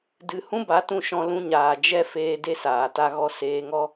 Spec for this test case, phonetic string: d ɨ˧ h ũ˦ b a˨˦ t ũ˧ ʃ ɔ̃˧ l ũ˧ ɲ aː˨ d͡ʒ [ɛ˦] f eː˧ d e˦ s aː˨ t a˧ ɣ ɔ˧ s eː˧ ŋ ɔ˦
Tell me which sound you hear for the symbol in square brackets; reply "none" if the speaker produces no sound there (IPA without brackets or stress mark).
ɛ˦